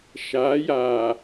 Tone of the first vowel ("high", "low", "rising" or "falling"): rising